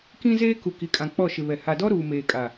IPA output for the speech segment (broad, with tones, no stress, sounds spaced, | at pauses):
k ĩ˦ z eː˦ k u˨ k i˨ kʼ ã˨ k͡p ɔ˦˨ ʃ ɪ˨ β ɛ˨ h a˨ d ɔ˦ ɾ uː˨ m eː˨ kʼ a˨